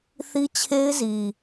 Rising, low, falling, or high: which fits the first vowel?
high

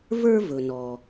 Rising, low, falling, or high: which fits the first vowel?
high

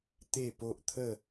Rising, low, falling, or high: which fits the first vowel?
falling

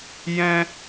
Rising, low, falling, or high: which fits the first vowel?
high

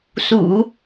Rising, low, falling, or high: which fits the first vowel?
low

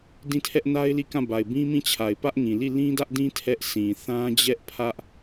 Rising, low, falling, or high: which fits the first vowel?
falling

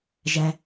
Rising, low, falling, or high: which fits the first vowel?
low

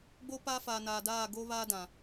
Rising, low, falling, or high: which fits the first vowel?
high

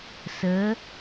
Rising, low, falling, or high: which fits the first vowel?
rising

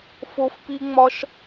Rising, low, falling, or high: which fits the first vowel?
high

